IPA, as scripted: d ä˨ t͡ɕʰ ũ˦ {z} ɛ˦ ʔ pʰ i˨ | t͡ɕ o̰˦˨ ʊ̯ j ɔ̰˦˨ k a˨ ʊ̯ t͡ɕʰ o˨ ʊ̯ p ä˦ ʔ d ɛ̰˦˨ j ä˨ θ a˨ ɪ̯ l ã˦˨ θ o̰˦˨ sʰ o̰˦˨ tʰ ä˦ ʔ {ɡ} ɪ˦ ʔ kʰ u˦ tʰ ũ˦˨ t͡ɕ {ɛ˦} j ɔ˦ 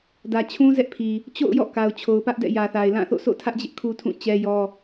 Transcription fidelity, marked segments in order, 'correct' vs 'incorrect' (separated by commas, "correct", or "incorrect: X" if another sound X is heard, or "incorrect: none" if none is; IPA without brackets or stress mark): correct, incorrect: d͡ʑ, correct